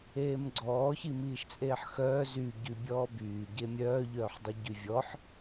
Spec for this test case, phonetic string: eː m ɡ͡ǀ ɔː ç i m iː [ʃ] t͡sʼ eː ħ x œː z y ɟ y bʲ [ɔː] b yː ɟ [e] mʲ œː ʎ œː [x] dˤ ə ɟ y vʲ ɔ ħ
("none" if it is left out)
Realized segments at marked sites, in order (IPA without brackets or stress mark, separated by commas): ʃ, ɔː, e, ħ